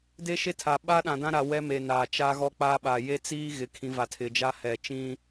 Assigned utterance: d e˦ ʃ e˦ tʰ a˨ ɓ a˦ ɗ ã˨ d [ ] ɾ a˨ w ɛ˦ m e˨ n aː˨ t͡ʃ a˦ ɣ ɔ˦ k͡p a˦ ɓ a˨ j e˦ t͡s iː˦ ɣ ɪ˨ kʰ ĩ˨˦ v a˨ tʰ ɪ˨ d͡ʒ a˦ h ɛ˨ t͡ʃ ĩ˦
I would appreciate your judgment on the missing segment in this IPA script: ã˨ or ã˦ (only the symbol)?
ã˦